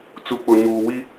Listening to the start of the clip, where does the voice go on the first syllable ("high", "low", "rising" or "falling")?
low